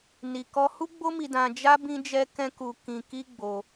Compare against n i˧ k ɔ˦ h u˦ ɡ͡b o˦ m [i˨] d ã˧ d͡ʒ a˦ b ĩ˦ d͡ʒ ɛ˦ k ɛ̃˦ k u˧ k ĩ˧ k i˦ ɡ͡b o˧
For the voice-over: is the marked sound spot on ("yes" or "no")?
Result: no